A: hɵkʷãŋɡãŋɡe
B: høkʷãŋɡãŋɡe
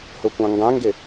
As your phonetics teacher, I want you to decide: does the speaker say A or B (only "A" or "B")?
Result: A